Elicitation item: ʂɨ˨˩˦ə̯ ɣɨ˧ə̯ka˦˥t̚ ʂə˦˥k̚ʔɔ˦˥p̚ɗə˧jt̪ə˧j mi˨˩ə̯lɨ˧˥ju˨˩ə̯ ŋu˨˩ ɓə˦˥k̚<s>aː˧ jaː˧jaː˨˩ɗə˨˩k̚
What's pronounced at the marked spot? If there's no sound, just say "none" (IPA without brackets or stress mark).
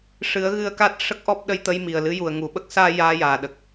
s